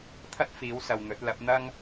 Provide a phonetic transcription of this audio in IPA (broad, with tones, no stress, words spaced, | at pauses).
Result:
t̪ʰɐ˥t̚fiː˨˥w sɐ˨wn̪ɵ˨˥t̚ lɐ˨˥p̚n̪ɐ˥ŋ